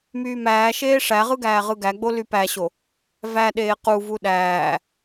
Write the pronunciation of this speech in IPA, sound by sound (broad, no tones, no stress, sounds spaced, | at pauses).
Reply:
m yː m æː ʃ eː ʂ æ ʁ ɯ ɡ æː ʁ ɯ ɡ æ ɡ͡b o l y p æ ɕ o | v æ ɗ eː q u v u ɗ æː